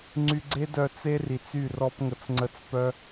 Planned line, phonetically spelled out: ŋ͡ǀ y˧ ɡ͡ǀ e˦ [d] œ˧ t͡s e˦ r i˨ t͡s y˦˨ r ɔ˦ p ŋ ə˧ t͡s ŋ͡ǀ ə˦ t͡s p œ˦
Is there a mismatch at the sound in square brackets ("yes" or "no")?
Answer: no